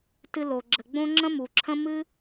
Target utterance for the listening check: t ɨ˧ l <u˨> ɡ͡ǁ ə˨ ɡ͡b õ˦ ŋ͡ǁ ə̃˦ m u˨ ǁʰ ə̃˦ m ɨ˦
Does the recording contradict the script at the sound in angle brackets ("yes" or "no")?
yes